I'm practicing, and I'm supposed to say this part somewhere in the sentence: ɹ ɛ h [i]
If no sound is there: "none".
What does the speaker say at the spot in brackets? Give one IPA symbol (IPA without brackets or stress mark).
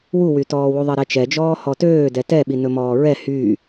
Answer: y